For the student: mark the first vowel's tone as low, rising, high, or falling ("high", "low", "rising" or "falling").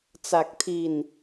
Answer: low